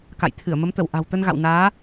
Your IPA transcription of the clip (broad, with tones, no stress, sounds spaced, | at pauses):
k a̰˧˨ j t̪ʰ ɨ˧˩ ə̯ m ə˨˦ m t̪ ə˧˩ w ʔ a̤˨˩ w t̪ ə˧ n ɣ a̰˧˨ w n aː˨˦